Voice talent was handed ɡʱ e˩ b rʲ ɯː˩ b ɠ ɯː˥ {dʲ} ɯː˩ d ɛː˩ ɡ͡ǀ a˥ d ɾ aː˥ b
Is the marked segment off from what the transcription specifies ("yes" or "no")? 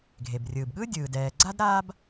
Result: no